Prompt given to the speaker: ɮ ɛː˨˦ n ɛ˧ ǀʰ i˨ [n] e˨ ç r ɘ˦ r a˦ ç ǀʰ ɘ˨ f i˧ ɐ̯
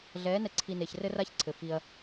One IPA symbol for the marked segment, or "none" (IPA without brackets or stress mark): n